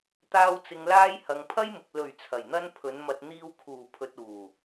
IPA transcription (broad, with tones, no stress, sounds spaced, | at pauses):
t̪ aː˧ w t͡s ɪ˨ ŋ l aː˧ j h ɐ˨ ŋ pʰ ɐ˥ j m ʊ˨ k̚ l ɵ˨˩ ɥ t͡sʰ ɐ˨˩ j n̪ ɐ˥ n pʰ ɵ˨˥ n m ɐ˧ t̚ n̪ iː˧ w kʰ uː˨˩ pʰ ɵ˨ t̚ uː˨˩